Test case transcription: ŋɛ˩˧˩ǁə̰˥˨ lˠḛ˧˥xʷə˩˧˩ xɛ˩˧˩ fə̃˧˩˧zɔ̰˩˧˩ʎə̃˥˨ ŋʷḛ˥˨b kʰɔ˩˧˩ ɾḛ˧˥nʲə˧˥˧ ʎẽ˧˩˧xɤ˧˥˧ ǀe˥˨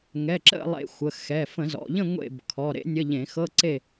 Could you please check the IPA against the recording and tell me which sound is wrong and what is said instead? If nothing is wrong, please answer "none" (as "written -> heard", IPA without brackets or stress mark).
none